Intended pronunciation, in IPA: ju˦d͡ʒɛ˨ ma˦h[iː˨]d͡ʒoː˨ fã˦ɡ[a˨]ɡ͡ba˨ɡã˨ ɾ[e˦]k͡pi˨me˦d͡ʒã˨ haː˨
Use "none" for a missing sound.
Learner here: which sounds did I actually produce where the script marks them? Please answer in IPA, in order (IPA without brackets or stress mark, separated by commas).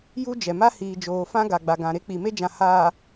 iː˨, a˨, e˦